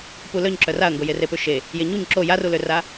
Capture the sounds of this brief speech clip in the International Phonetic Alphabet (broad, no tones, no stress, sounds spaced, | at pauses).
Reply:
p u l œ ɲ ǁ œ r a ɐ̯ ŋ ɡ o j e r e p ø ʃ e | j e ɲ u ɲ ǁ o j a r u l ø r a